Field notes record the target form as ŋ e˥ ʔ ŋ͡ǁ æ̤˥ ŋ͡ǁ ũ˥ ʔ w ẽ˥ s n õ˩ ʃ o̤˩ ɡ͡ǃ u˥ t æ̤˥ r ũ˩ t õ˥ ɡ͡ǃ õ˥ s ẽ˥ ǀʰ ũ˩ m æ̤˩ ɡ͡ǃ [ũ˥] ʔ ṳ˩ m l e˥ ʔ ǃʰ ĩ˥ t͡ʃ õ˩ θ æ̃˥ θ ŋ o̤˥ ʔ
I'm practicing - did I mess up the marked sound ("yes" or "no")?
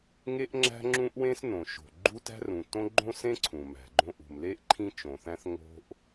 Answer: yes